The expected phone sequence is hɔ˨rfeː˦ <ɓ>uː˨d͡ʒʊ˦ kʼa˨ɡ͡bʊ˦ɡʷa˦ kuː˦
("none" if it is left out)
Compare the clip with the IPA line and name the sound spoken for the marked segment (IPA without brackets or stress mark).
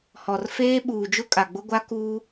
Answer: ɓ